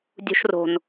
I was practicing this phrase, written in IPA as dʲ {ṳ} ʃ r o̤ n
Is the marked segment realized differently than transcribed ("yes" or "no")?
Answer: no